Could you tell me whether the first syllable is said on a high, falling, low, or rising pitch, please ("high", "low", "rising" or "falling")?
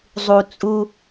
low